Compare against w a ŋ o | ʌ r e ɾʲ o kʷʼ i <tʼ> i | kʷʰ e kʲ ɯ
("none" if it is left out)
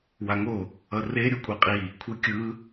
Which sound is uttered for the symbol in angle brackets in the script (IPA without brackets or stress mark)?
qʼ